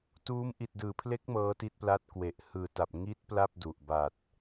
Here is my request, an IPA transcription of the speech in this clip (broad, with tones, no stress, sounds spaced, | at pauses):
t uː˦˥ m ʔ i˨˩ t̚ d ɯː˩˦ pʰ l e˦˥ k̚ m ɤː˦˥ t i˦˥ t̚ p l a˦˥ t̚ k w e˨˩ ʔ h ɯː˨˩ t a˨˩ p̚ ŋ i˦˥ t̚ p l a˥˩ p̚ d u˨˩ ʔ b a˨˩ t̚